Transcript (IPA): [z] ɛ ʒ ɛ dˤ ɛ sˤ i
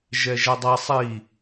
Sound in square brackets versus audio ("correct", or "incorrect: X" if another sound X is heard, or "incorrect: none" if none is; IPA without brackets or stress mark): incorrect: ʒ